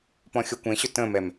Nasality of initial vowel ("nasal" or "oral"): nasal